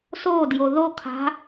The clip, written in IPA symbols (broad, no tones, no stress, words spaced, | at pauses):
sodjo ðo kʰa̤